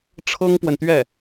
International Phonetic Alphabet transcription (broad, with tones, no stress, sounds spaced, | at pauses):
ʈ͡ʂʰ ɤ˥ ŋ p w ə˨ n t̪ ɥ ɛ˥˩